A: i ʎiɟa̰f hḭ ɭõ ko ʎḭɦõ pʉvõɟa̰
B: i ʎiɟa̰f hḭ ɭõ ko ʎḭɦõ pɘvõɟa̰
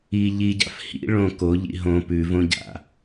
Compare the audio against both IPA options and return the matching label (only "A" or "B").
A